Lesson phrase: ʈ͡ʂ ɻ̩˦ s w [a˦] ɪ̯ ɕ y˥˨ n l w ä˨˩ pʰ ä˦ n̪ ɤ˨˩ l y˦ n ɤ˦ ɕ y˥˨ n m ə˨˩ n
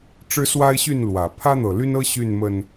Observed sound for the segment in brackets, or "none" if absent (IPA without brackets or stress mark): a˦